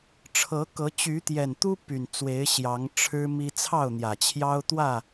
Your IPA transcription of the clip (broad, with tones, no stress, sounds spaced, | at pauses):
ʈ͡ʂʰ ɤ˨˦ k ɤ˨˦ t͡ɕ y˨˦ t̪ j ɛ˨˩ n t̪ u˦ p y˨˩ n t͡s w e˨˦ ɪ̯ ɕ j ɑ˨˦ ŋ ʈ͡ʂʰ ɻ̩˦ m i˦ t͡sʰ ɑ˥˨ ʊ̯ n̪ j ä˨˩ t͡ɕʰ j ɑ˦ ʊ̯ t̪ w ä˥˨